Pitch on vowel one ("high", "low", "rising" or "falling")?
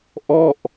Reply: falling